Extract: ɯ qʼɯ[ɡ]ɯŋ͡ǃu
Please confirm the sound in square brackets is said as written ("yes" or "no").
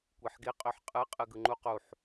yes